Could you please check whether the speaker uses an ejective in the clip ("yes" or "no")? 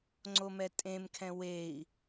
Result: yes